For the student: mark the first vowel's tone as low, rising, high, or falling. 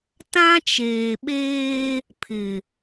high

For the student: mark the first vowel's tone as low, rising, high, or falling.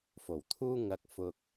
low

